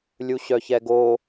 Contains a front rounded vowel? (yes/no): yes